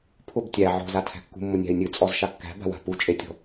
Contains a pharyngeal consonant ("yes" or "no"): yes